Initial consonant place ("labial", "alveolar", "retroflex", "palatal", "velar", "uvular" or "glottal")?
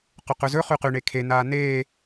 uvular